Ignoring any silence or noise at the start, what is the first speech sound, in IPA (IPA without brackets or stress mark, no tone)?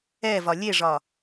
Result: ɛ